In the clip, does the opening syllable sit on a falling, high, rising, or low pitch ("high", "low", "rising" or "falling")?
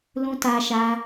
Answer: high